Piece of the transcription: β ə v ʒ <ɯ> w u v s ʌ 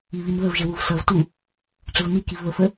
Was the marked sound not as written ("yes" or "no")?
yes